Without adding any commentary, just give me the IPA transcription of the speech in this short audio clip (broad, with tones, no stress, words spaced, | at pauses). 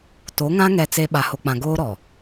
to˨˦ŋã˦ ŋɛ˦t͡se˦ ɓa˨ho˨k͡pã˨ ɡoː˦ɾɔ˨